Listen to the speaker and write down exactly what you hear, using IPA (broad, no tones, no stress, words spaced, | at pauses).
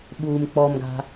ɓuːmk͡pɔmɡa̤